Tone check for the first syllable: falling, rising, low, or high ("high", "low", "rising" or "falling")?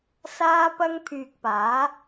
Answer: high